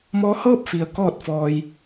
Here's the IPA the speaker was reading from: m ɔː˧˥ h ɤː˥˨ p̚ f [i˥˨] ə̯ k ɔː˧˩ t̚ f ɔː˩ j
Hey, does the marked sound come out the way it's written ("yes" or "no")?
no